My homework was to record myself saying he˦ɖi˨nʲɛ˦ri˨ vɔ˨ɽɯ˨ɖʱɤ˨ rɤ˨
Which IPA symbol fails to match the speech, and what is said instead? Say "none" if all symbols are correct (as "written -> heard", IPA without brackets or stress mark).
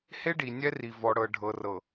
ɯ˨ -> ɤ˨